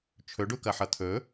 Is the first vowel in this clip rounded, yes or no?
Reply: yes